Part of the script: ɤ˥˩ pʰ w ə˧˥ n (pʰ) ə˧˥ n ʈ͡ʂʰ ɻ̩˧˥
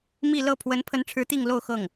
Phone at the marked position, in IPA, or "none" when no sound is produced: pʰ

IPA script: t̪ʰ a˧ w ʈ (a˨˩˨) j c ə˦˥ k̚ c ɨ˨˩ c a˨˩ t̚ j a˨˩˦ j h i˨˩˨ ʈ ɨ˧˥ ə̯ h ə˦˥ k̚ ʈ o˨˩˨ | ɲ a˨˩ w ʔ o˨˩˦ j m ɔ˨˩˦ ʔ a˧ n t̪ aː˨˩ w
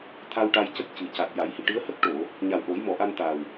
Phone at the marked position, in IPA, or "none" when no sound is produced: a˧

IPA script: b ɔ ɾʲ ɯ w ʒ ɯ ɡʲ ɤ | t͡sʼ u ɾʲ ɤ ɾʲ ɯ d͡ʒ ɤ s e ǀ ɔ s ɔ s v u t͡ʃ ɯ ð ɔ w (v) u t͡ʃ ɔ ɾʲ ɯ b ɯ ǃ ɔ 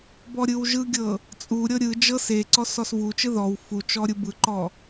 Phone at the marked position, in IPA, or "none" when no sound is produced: f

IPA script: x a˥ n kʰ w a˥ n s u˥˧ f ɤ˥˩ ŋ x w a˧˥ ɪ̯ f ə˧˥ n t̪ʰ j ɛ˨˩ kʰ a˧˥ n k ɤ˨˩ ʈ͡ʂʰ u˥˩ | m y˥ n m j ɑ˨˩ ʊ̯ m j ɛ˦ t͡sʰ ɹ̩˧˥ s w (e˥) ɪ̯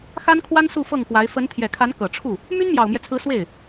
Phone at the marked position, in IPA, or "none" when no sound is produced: e˥˩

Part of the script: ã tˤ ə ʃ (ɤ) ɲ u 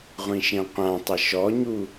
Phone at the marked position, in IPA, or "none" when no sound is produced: ɔ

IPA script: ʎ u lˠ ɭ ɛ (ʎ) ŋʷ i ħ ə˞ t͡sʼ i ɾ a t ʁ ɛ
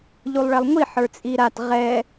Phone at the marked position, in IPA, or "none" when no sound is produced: lˠ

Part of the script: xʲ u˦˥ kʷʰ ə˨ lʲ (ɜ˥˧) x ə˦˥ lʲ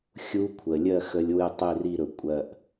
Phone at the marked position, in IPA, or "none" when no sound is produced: ɜ˥˧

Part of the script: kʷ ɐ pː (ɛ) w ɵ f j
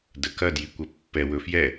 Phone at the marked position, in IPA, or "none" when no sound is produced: ɛ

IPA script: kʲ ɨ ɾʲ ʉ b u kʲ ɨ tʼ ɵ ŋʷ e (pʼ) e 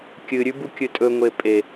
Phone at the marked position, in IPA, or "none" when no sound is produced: pʼ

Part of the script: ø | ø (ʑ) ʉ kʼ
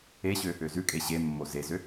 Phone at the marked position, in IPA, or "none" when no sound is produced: z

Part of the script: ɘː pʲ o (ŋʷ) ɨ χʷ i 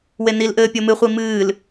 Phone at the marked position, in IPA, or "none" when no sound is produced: m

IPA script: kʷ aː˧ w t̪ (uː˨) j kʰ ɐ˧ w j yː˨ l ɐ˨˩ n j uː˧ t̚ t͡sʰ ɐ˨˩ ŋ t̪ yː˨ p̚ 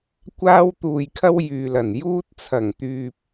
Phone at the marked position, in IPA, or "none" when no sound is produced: uː˨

